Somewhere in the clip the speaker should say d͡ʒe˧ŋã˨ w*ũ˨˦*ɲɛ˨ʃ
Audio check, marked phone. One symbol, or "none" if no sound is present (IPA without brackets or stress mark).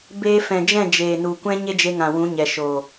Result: ũ˨˦